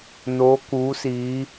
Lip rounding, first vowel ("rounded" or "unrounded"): rounded